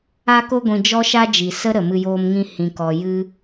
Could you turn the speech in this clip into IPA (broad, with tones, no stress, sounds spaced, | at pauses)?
a˧ k o˧ ɡʷ ĩ˨ d͡ʒ ɔ˦ ʃ a˦ d͡ʒ i˨ s ə˦ ɾ ə˨ m ɨ˧ j oː˧ m ŋ ĩ˧ h ĩ˨ k ɔ˨ j ɨ˦